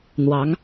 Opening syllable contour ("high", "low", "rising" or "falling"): rising